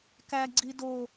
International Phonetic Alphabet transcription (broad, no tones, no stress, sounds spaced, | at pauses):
k æ ɡ͡ǀ i d o